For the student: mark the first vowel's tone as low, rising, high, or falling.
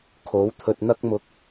rising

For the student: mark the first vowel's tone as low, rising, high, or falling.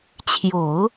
low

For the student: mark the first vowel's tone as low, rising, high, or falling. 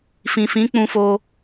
low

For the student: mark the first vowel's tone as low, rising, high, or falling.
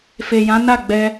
low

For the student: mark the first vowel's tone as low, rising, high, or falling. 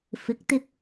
rising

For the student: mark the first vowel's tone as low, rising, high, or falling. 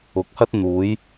rising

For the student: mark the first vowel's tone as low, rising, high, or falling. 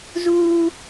high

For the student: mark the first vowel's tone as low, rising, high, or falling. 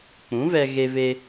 rising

